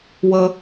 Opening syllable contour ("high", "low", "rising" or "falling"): high